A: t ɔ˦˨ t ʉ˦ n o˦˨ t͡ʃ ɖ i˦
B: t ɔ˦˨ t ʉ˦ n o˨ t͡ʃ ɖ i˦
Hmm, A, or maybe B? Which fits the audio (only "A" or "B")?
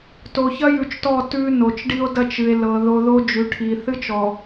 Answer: B